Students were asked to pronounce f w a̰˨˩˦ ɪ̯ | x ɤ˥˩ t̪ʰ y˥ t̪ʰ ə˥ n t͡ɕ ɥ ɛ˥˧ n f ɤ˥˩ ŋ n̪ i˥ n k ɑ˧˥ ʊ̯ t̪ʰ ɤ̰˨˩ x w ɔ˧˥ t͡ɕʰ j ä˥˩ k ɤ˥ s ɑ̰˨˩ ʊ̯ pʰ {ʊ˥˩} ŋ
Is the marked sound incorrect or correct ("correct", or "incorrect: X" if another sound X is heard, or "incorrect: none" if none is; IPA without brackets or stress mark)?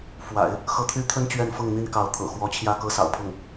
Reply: correct